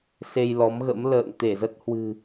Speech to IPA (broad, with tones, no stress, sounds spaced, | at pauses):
s e˧ j l ɔ˨˦ m ɣ ə̰˧˥ m l ə̰ː˧˨ ŋ t̪ e˧˩ z ə˦˥ t̚ h w ɨ̤˨˩